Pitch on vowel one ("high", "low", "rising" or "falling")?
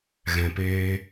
low